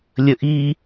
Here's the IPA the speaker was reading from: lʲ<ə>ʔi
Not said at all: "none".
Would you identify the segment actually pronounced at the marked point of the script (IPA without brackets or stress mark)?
ə